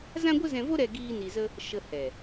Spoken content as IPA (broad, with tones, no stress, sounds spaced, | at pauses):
z ã˦ ɡʷ ə˦ z ɛ̃˧ v o˦ ɾ ɛ˦ ɡ iː˦ n i˧ z ə˦ | ʃ ə˧ h ɛ˨